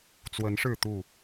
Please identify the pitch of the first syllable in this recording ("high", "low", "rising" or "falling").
rising